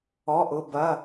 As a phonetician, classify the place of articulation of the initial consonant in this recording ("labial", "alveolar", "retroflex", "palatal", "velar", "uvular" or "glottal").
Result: glottal